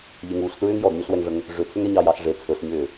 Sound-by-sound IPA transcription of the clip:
ʎ e ŋ uː ɬ t ɹ ʏː ŋ j ɔ d ɲ ɵ ɬ w ɛ ŋ ʐ ə ŋ | ʐ ʏ tʰ ʏ ŋ ɛ ɲ ɑ j ɑ ɬ ʐ e t͡sʰ ɵ ɬ ɲ ʏː

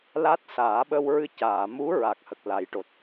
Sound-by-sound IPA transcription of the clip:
l a˦˥ t̚ s aː˨˩˦ ɓ ə˧ w ɹ ɨ˧ c aː˨˩˨ m u˧˥ ɹ a˨˩ k̚ h ə˨˩ k̚ l a˨˩˦ j ʈ o˨˩ t̚

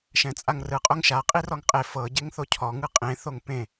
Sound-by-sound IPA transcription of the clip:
ʃ ɛ̃ t͡sʼ a ŋ r ɯ qʼ o ŋ ʃ a qʼ i r ɔ ŋ qʼ e f ɤ ɟ e ŋ θ o cʰ ɔ ŋ ɯ qʼ ẽ θ o ŋ p ẽ

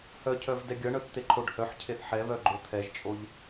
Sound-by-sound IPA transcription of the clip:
h œ cʰ œ v d ɛ ɡʲ ʌ ɳ œ θ t̪ e ǃʰ o ɖ h œ ħ cʰ e θ ħ ɛ β œ ɡ͡ǃ o t̪ʰ ɛ ʒ t͡ʃʼ o ʎ

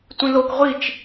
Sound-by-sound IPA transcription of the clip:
tʷ ĩ l o k ʁʷ i t͡ʃ

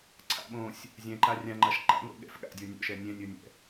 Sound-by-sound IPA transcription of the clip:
ǀʰ a̰ ɓ õ sʲ | zʲ ɛ̃ ǃ a rʲ ã ŋ͡ǃ a ʃ ǃ a̰ ŋʷ ɛ̰ ɠ ɛ̰ f ɠ a̰ dʲ o nʲ o̰ ʃ ɛ nʲ ɛ̃ nʲ o nʲ ɛ̰

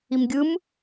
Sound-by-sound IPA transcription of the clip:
i m ɡʲ ɯ m

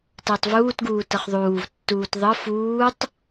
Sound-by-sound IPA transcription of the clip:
t əː tˤ v uː t ɡ uː t ɤ χ ðˤ uː v tː uː t ðˤ ɤ f uː tˤ

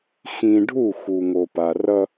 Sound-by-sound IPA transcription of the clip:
x ĩ˨ ɖʱ u˦˨ x u˨ ŋ o˨ p a˨ r ʌ˦

